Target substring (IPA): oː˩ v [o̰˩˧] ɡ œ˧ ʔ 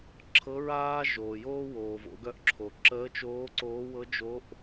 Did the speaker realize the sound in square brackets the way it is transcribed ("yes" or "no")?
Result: yes